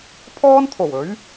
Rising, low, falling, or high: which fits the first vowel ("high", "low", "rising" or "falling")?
high